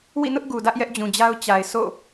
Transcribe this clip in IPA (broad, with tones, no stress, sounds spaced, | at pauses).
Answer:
w ḭ˦˨ n ʊ˦ ʔ ɡ u˨ d ä˦ ʔ j ɛ˦ ʔ d͡ʑ ũ˨ d͡ʑ a˦ ʊ̯ t͡ɕ a˨ ɪ̯ s o̰˦˨